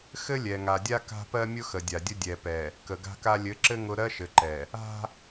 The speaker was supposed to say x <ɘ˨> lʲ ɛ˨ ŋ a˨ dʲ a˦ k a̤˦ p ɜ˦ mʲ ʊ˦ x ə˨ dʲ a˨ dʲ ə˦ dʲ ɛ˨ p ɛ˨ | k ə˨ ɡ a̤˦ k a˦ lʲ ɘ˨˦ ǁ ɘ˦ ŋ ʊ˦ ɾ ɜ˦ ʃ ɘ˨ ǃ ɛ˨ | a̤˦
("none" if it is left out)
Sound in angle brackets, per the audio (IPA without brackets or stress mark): ɘ˦